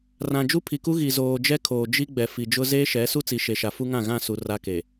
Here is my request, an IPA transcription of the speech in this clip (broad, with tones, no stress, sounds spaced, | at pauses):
r ã˨ d͡ʒ u˦ pʰ i˨ k u˦ ɣ i˨ z oː˨ d͡ʒ ɛ˦ kʰ oː˨ d͡ʒ i˦ ɡ͡b ɛ˨ f i˨ d͡ʒ ʊ˦ z eː˦ ʃ ɛ˨˦ s u˦ t͡s i˨ ʃ e˨ ʃ a˨ f u˦ ŋ ã˦˨ ɣ ã˦˨ s u˨ r a˦ k e˨